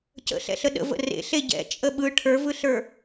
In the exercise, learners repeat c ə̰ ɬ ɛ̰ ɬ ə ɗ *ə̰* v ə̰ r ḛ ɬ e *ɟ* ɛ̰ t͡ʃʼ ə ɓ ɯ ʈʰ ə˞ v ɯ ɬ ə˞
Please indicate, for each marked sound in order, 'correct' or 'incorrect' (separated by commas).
correct, correct